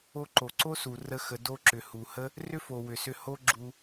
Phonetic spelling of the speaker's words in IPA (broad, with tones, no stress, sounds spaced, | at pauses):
o˧ ǃ o˨ ǀ o˦ s u˨ r ə˦ x ə˧ d o˧ ǁ ʏ˨ h u˨ h ə˦ | r ʏ˦ f o˨ w ʏ˨ s ʏ˧ h o˦ ɡ͡ǁ u˧